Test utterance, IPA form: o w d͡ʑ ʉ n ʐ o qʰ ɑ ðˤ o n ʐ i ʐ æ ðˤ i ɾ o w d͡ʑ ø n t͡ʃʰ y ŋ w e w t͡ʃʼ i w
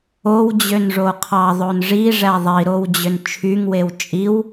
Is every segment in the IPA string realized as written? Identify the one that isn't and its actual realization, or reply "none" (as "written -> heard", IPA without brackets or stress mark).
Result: ʉ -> ø